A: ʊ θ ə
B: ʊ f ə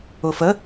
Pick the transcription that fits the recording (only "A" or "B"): B